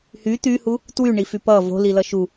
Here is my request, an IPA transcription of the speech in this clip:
h y t̪ y h u | t w y ɳ i f y p ʌ v o̤ l i l ʌ ʃ u

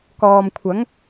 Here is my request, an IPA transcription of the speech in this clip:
k ɔː˨ m kʷʰ ɐ˨˥ ŋ

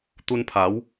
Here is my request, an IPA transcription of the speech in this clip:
t̪ u˧ n pʰ a˨˦ w

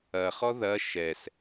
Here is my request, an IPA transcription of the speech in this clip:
ɐ χ ɔ ð ɐ ʃ ɛ s

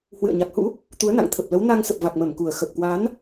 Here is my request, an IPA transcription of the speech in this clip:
h w ɨ̰˧˨ ə̯ ɲ a˨˩ k̚ h ṵ˧˥ | t̪ u˨˦ ə̯ n a̰˧˨ ŋ t̪ʰ ə˨˩ p̚ l ə˨˦ w n a˧ ŋ s ə˨˩ p̚ v a˨˩ k̚ m ə˧˩ m k u˨˩ ə̯ x ə˨˩ p̚ k w a˨˦ n

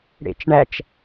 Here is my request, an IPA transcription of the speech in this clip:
ɽ ḛ t͡ʃ ɳ æ t͡ʃ

